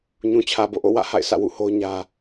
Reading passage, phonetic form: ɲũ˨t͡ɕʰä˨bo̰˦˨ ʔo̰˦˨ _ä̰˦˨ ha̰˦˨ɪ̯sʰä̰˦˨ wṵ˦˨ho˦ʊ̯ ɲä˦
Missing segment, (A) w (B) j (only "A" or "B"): A